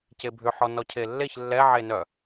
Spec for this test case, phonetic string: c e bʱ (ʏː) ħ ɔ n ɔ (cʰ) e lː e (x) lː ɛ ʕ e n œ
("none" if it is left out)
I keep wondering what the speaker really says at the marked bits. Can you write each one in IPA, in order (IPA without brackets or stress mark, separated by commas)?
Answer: ʏ, cʰ, ç